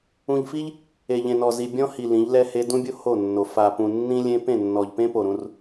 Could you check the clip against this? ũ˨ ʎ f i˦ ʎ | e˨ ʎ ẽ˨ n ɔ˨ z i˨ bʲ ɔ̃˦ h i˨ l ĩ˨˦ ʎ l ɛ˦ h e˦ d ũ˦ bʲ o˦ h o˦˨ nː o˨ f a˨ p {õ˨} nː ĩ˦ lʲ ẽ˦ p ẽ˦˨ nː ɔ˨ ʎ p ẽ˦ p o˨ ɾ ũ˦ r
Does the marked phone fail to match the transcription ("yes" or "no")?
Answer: yes